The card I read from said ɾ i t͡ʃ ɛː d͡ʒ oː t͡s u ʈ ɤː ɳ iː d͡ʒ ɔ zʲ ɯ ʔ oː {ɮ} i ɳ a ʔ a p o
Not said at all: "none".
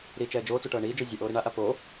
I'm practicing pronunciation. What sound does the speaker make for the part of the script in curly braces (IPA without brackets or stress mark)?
ɾ